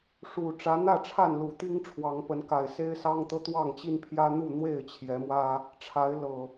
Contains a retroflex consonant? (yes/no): yes